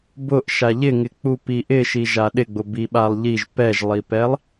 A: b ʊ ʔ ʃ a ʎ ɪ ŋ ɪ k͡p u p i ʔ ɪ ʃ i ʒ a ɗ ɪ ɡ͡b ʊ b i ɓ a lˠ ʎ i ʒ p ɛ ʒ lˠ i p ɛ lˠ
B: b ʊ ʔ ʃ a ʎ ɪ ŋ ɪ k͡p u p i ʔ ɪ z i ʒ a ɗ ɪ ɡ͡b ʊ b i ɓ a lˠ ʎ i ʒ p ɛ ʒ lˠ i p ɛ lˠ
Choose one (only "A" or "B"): A